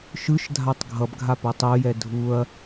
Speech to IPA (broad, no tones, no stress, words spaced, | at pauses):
ʃɯʃdʱatˤ ɡʱʌbɡʱa potˤujɛ dʱuɐ̯